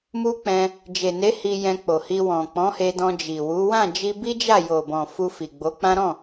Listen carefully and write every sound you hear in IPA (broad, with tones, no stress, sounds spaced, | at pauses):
m u˦ k͡p ɛ̃˧ | d͡ʒ e˨ n e˨˦ h i˧ j ɛ̃˧ k͡p o˨ h i˧ w ɔ̃˨ k͡p ɔ̃˨˦ h e˧ d ɔ̃˧ d͡ʒ i˨ w u˨˦ w ã˦˨ d͡ʒ i˧ b i˦ d͡ʒ a˦˨ j o˨ b ɔ̃˨ f u˧ f i˨ ɡ͡b o˨˦ k͡p ã˦ ɾ ɔ̃˦˨